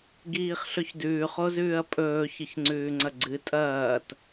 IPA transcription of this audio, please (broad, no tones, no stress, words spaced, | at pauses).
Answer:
ɡiːχɬɵçdʉːχ ozʉːɐ̯pʼɵː çɨçŋ͡ǀʉːŋ͡ǀɐɡ͡ǀɨ tʼɐːt